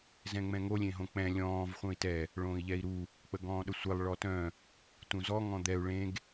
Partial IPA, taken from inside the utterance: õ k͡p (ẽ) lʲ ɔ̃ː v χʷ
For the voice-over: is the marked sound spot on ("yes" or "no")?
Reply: no